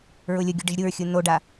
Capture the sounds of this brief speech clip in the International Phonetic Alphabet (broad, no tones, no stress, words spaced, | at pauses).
ɹʊlʲʊɡʲʊ ɖɪʒɾʲuɹxʲu noɖa